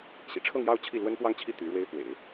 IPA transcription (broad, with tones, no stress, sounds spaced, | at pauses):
ɕ ḭ˨˩ ʈ͡ʂʰ ɤ˥˧ ŋ j ɑ˥˧ ʊ̯ t͡ɕʰ i˥˩ l w ə˥ n p w ɑ˥˧ ŋ t͡ɕʰ i˥˩ t̪ y˧˥ ɻ w e˥ ɪ̯ f w ḛ˨˩˦ ɪ̯